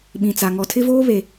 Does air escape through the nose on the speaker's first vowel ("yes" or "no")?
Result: yes